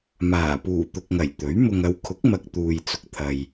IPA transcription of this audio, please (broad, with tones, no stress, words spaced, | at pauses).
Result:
maː˨˩puː˨˩ t̪ʊ˨k̚ŋɐ˨˩j t̪ɵ˨˥ɥ mʊ˨ŋɐ˨˧wkʰʊ˨˥k̚mɐ˨k̚ t̪uː˨jt͡sʊ˨k̚t̪ʰɐ˨j